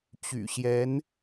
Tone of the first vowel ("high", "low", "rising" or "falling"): low